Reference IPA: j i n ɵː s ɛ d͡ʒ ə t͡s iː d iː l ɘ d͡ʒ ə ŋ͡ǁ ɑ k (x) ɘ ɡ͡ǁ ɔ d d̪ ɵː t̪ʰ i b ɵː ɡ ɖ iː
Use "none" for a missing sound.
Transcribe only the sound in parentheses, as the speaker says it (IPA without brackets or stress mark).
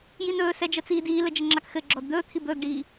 x